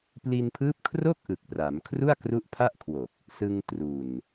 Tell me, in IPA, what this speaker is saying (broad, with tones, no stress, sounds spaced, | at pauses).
p l i˧ n pʰ ɯː˦˥ p̚ kʰ r o˥˩ k̚ ʔ ɯ˨˩ k̚ p r a˩˦ m kʰ r u˥˩ a̯ k r u˦˥ ʔ pʰ a˥˩ ʔ kʰ w o˨˩ k̚ | s ɯ˧ ŋ t r u˨˩ n